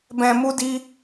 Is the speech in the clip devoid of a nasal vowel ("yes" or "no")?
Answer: no